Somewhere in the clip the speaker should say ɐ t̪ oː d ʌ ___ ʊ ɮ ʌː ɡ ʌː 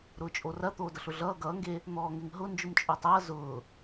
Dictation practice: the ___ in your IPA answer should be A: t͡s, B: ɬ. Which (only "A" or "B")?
B